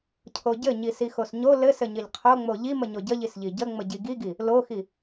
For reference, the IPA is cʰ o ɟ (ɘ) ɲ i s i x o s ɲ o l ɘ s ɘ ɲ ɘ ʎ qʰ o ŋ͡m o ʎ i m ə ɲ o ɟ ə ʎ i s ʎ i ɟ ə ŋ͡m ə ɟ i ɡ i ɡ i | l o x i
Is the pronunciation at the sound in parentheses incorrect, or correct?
correct